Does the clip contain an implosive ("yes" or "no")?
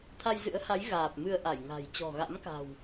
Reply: no